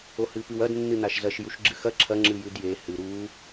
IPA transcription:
o h ɨ p ɨ w ɐ d nː ɨ n a ʃ z ɐ ʃ j u ʃ ɡ͡ǁ ɨ x ɐ ǁʰ ɐ ŋ͡ǁ ɨ j ʉ d j e h ɨ ɾ u

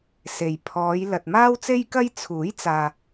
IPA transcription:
s e˨ j pʰ ɔː˨˧ j l ɐ˨ t̚ m aː˥ w t͡s e˥ j k ɐ˥ j t͡sʰ uː˨˥ j t͡s aː˨

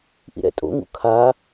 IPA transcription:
ʔ ḭ ɾ ɛ̰ tʼ o̰ ŋ ṵ kʰ a

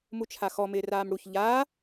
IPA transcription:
m u t͡ʃʰ a x ɔ m ɪː r aː m ɽ u ç ʎ aː

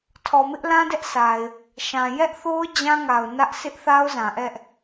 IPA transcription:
tʰ ɔ˨ m ɪ˦ ʔ l ã˦ d ɛ˦ ʔ sʰ a˨ ɪ̯ | ʃ ã˨ j ɛ˦ ʔ θ o˦ ʊ̯ d͡ʑ ã˦ ŋ a˨ ʊ̯ n ä˦ ʔ sʰ ɪ˦ ʔ θ a˦ ʊ̯ z ã˨ ʔ ɛ˦ ʔ

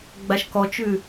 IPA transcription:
ɡ͡b a ʃ k ɔ t͡ʃ ʉ

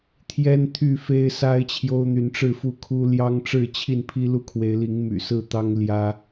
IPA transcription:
t̪ʰ j ɛ˦ n t̪ʰ y˥˨ f e˦ ɪ̯ s a˦ ɪ̯ t͡ɕʰ j o˦ ʊ̯ n̪ y˨˦ n ʈ͡ʂ ɻ̩˥˨ f u˥˨ kʰ u˦ l j ɑ˦ ŋ ʈ͡ʂ ɻ̩˥˨ t͡ɕʰ i˥˨ n pʰ i˦ l u˥˨ kʰ w e˨˦ ɪ̯ l i˨˦ ŋ m y̰˨˩ s ɹ̩˥˨ t̪ ɑ˦ ŋ l j ä˦

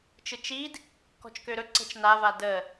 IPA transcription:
t͡ʃ ɯ t͡ʃ i d | k ɔ̤ t͡ʃ k ø ɾ ɵ ǀ ə̤ t͡ʃ n a v a d ə

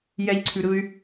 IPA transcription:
j ɛ ʎ ǀʰ ʉ ɾ ɯ y̯

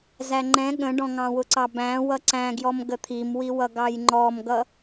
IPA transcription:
z æ ŋ͡ǃ ɛ̃ ɠ ə̃ ɖ ɔ̃ ŋ ɑ̃ w ʊ ǀ ɑ b æ̃ w ʌ ǀ æ̃ ɡ j ɔ m ɡ ə t̪ʰ i m w i w ʌ ɡ ɑ j ŋ͡ǃ ɔ m ɡ ʌ

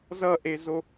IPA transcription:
z ʌ ʔ e z o

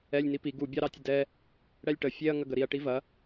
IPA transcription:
ɛ lʲ n i p i ɡ u bʲ ɑ ɾ ɑ tʲ ə d ɛ | ɽ ɛ lʲ ʈ ə fʲ e ɐ̯ ŋ ɐ ɡ ə ɾ i ɐ̯ ʈ i v ɐ

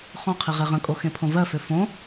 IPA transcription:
χ ɔ̃ qʰ i ʁ e ʁ ə̃ kʼ o x ẽ pʰ õ v ɜ f ø f õ

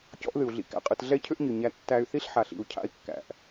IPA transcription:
c ɔ̰˦ ʔ ð ɨ˨ u̯ ɮ ḭ˧ k æ̰˨ qʼ ɨ˨ t ɮ ɛ˦ cʰ ʏ˦ ʔ ɲ ɨ˨ ɲ æ˧ tː æ˧ y̯ θ i˦ ɬ ħ a˨ ɬ ḭ˨ u̯ cʰ a̰˧ i̯ kː æ̰˨ ʔ

